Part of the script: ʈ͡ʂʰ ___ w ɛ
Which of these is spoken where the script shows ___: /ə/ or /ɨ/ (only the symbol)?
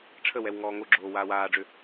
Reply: ə